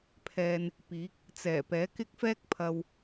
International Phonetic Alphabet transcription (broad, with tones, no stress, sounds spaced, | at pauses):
pʰ ɛː˧ n | p iː˨˥ k̚ | t͡s ɛː˨˩ p ɛː˨˥ k ɪ˥ k̚ f ɛː˥ k̚ pʰ ɐ˧ w